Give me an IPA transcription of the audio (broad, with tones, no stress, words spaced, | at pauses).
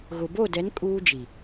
ɣʊ˨bo˦˨dɛ˨˦n kʼuː˦d͡ʒi˨